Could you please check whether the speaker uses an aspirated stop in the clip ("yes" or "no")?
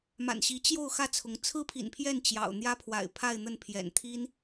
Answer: yes